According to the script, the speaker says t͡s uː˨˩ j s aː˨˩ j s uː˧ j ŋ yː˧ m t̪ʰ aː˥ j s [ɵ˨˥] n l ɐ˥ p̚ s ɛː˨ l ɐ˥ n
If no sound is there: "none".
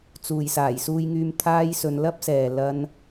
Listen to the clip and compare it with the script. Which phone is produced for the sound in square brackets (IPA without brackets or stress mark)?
ɵ˨˧